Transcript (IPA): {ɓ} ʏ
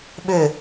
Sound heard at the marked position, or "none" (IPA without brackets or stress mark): ɓ